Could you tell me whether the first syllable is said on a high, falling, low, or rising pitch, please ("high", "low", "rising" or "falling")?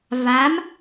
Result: rising